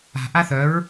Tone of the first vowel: low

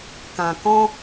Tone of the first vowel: low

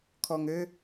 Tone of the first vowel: low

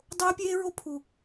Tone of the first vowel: high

